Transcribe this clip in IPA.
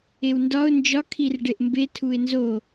e w n d ɒ ʊ̯ n d͡ʒ ɒ kʰ i r ɖ e ʔ m b e tʰ u ɪ̯ n z o

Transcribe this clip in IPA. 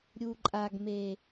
ɾʲ u˨ ǃʼ a˨ ɡ m e˨

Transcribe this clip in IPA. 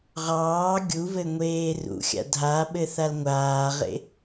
ʁ ɑː ɡʲ u v ɘ ŋʷ eː r ṵ xʲ a̰ dʱ a ɓ ɘ θ a l ŋʷ aː ʁ ḛ

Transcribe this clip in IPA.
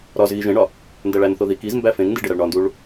ɾ ɒ z ɣ i ʒ ẽ ɳ ɒ | n d æ ɭ æ n θ o ð i k i z m b æ f ẽ ŋ n d i ɖ e ɾ æ ɭ ɳ ɒ n d u ɭ

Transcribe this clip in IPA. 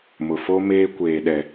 m ʊ˨ f o˦ m eː˦ kʷ eː˨ ɗ ɛ˨

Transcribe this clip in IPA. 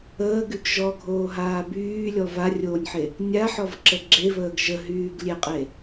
əː ɡ y ɡ ʒ ɔ ɡʱ oː ɦ aː b yː lʲ ɔ v a rʲ oː nʲ ħ e | nʲ a ħ ɔ v ǁ ə ɡ͡ǁ e v əː ɡ ʒ ə ɦ yː ɡ lʲ e qʼ e

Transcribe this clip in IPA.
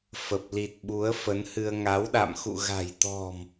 f ə˨˩ p̚ l i˨˩ t̚ ɓ u˨˦ ə̯ f ə˨˦ n h ɨ˧ ə̯ ŋ a˨˦ w ɗ a̰˧˨ m x ṵ˧˨ ɣ a̤˨˩ j t̪ ɔ̤˨˩ m

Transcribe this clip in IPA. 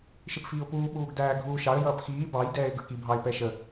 ʃ ɪ p f iː ʊ̯ p uː ɓ uː ɡ d æː ɡʱ uː ʃ ɑ ə̯ j ʌː p x iː b ɑ j d ɛː ɪ̯ ɡ ə˞ k i bʱ ɑ ɪ̯ p ɛ ʃ ə

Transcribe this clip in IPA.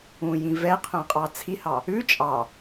ũ j ĩ v ɛ qʰ œ̃ qʼ ɑ t͡sʰ i h ɑ | ʉ t͡ʃʼ ɑ

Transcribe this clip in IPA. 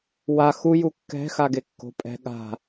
w a x u j u kː ɛ̤ x a ɡ e kː o̤ pʼ ɛ̤ ɠ a̤

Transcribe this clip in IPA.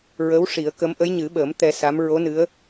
ɹ ə˧˥ w ʂ i˨˩˦ ə̯ k ə˧˥ m ʔ ə˧˥ j ɲ ɨ˨˩˦ ɓ əː˨˩˦ m t̪ ɛ˧ s a˧˥ m ɹ o˧˥ n ɨ˧˥ ə̯

